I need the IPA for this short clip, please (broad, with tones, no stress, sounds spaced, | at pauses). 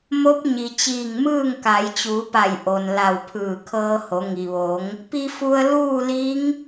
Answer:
m o˧˥ p̚ ɲ i˩ t͡ɕ iː˧˩ ŋ m ɯː˥˨ ŋ k a˩˧ j t͡ɕ uː˩˧ p a˧˩ j ʔ o˩ n l a˧˩ w pʰ ɯː˧˩ kʰ ɤː˧ h o˩˧ ŋ i˩ ʋ o˩˧ ŋ | p i˧ f u˧ ə̯ l uː˥˨ l i˧˥ ŋ